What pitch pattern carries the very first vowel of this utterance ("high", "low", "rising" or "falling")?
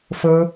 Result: high